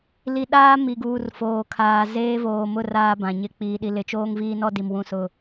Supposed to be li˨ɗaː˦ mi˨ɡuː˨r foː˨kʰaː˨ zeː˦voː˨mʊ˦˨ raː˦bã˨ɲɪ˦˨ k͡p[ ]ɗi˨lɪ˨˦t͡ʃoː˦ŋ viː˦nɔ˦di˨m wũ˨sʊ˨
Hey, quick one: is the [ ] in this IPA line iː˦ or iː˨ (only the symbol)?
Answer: iː˨